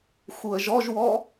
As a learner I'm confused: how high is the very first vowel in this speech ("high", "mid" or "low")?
high